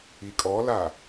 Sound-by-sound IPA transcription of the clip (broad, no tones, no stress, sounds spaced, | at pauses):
i kʼ ɔ l a